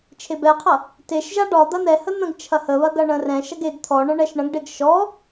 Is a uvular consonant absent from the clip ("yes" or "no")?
no